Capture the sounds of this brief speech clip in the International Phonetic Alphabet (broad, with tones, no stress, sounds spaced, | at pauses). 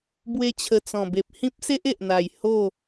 b w e˧ t͡ɕʰ ə˨˩ t͡s ɔ̃˨˩ b e˨ p̚ h ĩ˦ p̚ s e˦ ʔ e˨ ʔ n̪ a˨˩ j h o˥˧